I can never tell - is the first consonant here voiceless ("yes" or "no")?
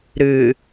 no